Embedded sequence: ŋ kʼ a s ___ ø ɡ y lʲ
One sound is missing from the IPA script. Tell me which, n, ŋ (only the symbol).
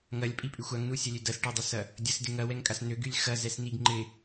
n